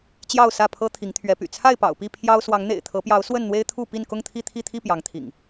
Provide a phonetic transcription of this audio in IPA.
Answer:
t͡ɕjɑ˥˨ʊ̯sä˥˨pʰɤ˦ t̪ʰi˨˦ŋt̪ʰɥɛ˨˦py̰˨˩ t͡sʰa˥˨ɪ̯pɑ̰˨˩ʊ̯pi˥˨ pʰjɑ˦ʊ̯ swɑ˨˦ŋn̪ḛ˨˩ɪ̯t̪ʰɤ˨˦pjɑ˨˦ʊ̯ swə˥˨nn̪we˦ɪ̯ t̪ʰu˥˨pi˥˨n kʊ˥˨ŋt̪ʰi˥˨t̪ʰi˥˨t̪ʰi˥˨ pjɑ˨˦ŋt̪ʰḭ˨˩ŋ

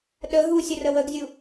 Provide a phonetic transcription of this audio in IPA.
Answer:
ɗə ɦusʲərə wəɡzʲu

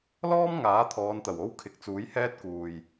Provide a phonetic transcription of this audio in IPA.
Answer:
lɔː˥m ŋaː˨˥t̪ʰɔː˨˧nt̪ɐ˨˩w o˥wkʰɪ˨˥k̚t͡suː˨˥j hɛː˥t̚kuː˨j

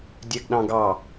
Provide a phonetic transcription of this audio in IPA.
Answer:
dʲɛɡɗɑ̃ɡɑ

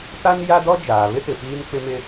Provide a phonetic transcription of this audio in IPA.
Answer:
ta˦nja˦dɔ˦ d͡ʒaː˨βɪ˦tɪ˨ piː˦nk͡pɪ˦mɪ˦

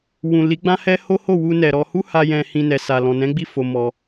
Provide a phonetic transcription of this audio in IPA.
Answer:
wũ˨li˨˦ɡ͡bã˦hɛ˦ ho˦ho˦˨wu˧ nɛ˨ɾɔ˧ hu˦ha˧ jɛ̃˧hĩ˧ nɛ˨ sa˨lɔ̃˨ nɛ̃˨˦ɡ͡bi˦˨ fo˧mɔ˧

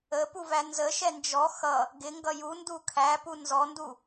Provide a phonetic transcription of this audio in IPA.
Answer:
əpuvæ nzəʃɛ nd͡ʒɔ xʌ | ɡɪŋɡʌ jundu kʰæpu nzɔndu

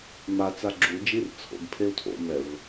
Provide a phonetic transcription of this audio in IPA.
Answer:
ma t͡saɡ͡ǁu d͡ʒirt͡sʰo̰ɡ pʰeu̯tʰo̰ mɛv

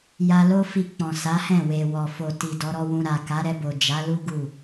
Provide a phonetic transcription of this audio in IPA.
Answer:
ja˧lo˦fi˧k͡pɔ̃˨ sa˨˦hɛ̃˦˨ we˨wɔ˨fo˨ ti˨ dɔ˨˦ɾɔ˦wũ˧ ɾa˨ ka˨˦ɾɛ˧bo˨ d͡ʒa˨˦ lu˦ ɡu˦˨

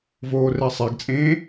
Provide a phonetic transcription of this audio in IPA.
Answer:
voːrɛsˤeɡt͡sʼẽː

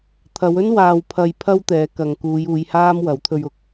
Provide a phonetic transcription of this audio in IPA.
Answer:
t̪ʰɐ˨˧wɵ˥n waː˨wpʰɐ˨jpʰɐ˧w t̪ɛː˨˧kɐ˨ŋkuː˨˧juː˨˧j haː˥mwɐ˨˥w t̪ʰɵ˧ɥʊ˨˥k̚

